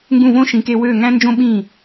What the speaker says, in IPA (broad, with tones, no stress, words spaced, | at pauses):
ŋɡũ˥˩võ˥ʃĩ˩˥ke˧ wø˥˩ ŋæ̃˥nd͡ʒõ˥ɓĩ˥˩